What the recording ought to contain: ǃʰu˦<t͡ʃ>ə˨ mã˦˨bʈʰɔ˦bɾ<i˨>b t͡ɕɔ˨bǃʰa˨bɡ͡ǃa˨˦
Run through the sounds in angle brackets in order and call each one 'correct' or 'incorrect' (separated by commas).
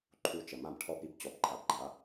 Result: correct, incorrect